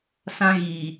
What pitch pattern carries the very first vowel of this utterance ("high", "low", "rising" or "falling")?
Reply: high